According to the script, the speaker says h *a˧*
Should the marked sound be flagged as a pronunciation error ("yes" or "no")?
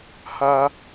no